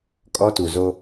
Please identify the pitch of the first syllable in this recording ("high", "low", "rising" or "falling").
high